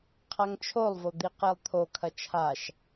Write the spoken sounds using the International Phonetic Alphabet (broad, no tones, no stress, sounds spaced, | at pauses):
qʰ a ŋ t͡ʃʰ o lˠ v o d̪ i q e lˠ t̪ʰ o kʰ ɐ t͡ʃʰ a ʃ